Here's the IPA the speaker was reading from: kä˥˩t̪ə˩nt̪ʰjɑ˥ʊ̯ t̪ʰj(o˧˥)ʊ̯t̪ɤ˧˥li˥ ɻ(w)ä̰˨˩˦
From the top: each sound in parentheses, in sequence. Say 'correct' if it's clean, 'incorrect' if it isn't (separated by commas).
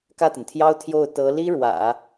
incorrect, correct